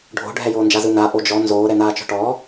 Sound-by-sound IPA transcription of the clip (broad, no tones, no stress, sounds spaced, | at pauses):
ɖʱ o̤ ɖʱ ɛ j oː n d͡ʒ a z ɯ n a ʔ o d͡ʒ ɔ n z oː ɾ ɛ n aː t͡ʃ ɔ̤ ʈ ɔː